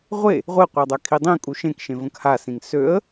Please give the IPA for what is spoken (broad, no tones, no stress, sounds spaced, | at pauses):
ʁʷ e | ʁʷ e qʷ a dˤ a kʰ i dˤ ĩ kʼ u ʃ ẽ k ʃ ẽ v ə̃ k h a s ĩ ŋ s ø ə̯